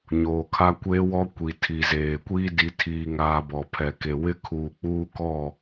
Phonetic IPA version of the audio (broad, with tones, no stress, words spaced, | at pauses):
ɲoː˨kʰa˦kʷeː˦wɔ˦ kʷi˨ tʰi˨ zeː˨kʷiː˦ di˨tʰiː˨ŋaː˨ bɔ˨pʰɛ˨ke˨ wɪ˦kʰuː˨k͡puː˦kɔ˦˨